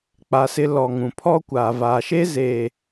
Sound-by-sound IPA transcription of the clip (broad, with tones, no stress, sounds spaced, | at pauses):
k͡p a˨ s ɪ˦ l ɔ˨ ŋ ũ˨ pʰ ɔ˦ kʷ aː˨ v aː˨ ʃ eː˦ z eː˨